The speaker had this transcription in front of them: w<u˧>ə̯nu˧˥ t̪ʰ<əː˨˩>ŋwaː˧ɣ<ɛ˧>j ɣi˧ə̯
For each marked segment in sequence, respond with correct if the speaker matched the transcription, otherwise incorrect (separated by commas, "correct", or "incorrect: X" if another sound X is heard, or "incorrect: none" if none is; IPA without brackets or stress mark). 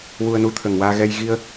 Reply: correct, incorrect: ə˨˩, correct